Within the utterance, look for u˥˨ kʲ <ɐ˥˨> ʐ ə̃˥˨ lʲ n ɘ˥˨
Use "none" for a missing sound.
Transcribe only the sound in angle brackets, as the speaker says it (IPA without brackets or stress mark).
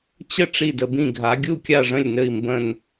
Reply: a˥˨